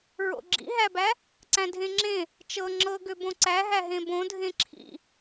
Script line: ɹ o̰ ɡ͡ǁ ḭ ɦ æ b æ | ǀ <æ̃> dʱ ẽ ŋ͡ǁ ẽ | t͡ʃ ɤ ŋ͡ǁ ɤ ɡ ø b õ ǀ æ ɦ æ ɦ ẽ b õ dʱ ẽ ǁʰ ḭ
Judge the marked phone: correct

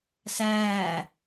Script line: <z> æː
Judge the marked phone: incorrect: s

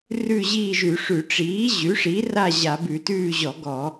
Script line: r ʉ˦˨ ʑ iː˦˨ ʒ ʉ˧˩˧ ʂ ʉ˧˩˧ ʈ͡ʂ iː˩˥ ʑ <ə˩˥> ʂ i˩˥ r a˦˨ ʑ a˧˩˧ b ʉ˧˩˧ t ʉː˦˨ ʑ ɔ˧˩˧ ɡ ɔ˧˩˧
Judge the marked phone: incorrect: ʉ˩˥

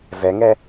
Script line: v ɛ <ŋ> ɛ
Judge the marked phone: correct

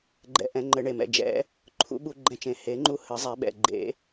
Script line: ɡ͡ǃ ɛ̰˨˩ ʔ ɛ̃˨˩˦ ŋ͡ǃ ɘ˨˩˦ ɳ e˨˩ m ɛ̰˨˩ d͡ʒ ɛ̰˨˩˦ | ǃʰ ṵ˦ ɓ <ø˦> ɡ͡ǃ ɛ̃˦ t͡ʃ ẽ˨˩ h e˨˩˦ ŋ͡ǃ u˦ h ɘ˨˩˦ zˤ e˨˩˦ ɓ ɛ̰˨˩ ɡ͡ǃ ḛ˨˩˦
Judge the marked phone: incorrect: u˦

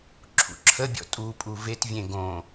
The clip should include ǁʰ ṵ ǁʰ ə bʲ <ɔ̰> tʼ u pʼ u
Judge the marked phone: correct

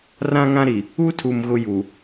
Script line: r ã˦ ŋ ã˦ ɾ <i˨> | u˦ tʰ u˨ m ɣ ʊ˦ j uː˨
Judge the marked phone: correct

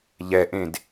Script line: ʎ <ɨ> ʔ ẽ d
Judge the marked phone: incorrect: ɛ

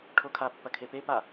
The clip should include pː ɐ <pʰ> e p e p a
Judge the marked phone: incorrect: kʰ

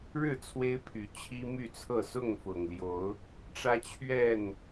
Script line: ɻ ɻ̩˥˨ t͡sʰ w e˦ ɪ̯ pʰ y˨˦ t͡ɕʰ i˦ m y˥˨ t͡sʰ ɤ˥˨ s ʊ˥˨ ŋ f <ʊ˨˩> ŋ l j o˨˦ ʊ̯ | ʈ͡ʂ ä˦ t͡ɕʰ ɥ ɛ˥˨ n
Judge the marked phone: correct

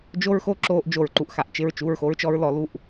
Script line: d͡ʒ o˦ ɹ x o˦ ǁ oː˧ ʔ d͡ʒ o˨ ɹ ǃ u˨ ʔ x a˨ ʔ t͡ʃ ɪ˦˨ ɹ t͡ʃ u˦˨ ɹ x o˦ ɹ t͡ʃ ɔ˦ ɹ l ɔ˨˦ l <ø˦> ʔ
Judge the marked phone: incorrect: u˦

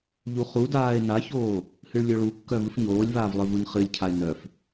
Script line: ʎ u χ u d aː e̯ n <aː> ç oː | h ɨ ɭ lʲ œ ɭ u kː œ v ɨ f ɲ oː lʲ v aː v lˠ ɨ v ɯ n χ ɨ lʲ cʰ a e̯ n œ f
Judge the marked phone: incorrect: a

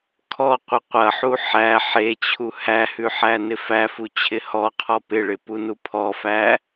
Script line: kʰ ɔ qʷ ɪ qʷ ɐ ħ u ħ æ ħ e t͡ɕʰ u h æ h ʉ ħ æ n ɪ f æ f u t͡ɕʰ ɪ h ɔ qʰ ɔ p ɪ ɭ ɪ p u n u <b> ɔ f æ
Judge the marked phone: incorrect: pʰ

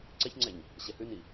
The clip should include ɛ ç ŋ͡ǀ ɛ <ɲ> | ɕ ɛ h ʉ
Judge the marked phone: correct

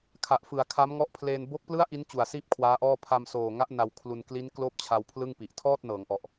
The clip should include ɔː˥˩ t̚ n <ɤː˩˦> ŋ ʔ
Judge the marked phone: correct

